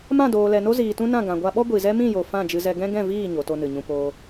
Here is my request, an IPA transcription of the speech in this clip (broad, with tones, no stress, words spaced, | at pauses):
mã˦˨doː˨lɛ˨no˦ ziː˨tũ˦nã˦˨ ɡã˨ɡʷa˧ɓɔ˦ ɡʷi˨zɛ˦ mĩ˦˨jo˨ fã˦˨d͡ʒɨ˧zɛ˧ ɡɛ̃˦ɡɛ̃˦˨viː˦˨ ɲo˨˦to˦nɨ˨ɲũ˦ poː˧